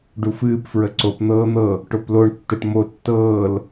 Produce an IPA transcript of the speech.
ɖ u f ɨː p f ɹ ə ǀ o p n̪ ɤː n̪ ɤ | ʈ o p l o ɳ tː ə ʈ m o tː ɤː l

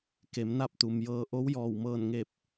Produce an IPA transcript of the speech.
k e˩˧ m n a˥˨ p̚ t̪ u˩ m j ɤː˧ ʔ o˧˥ w j ɔː˧˩ w m ɤː˧˩ n ŋ e˧˩ p̚

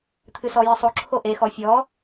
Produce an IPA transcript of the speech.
t̪ʰ ɨ s ɔ j ɨ sˤ o ǁʰ o ʔ e x ɔ fʲ ɔ

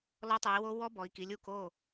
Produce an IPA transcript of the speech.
l ɔ˦˥ tˤ u˩˧ i̯ w o˦˥ w ɔ˦˥ b ɔ˩˧ i̯ k i˩˧ lʲ u˥˩ k o˥˩

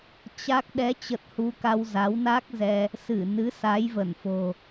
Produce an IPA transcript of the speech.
t͡ɕ a˦˥ k̚ ɗ ɛ˨˦ t͡ɕ ə˨˩ t̚ h u˧ k a˧ w z a˨˦ w n a˦˥ k̚ z ɛ˧ | s ɨ˧˩ n ɨ˨˦ s a˨˦ j v ə˧˩ n f o̤˨˩

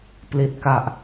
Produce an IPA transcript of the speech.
p l i˨˩ t̚ k a˨˩ ʔ

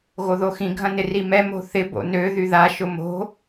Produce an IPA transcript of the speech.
ɣ o ð o x ĩ ɡʱ ɐ̃ n ɪ r i m ɛ m o̤ θ ɪ b o̰ n ø ð y ð a ʃ ʊ m o̤

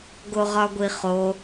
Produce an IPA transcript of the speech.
ɡ o ʁ ɒ ɡʷ i χ o

